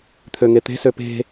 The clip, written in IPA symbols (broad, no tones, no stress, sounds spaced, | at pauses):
t̪ʰ ø ŋ e t̪ e̤ s ø p e̤